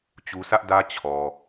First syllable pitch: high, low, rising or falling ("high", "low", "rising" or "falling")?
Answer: low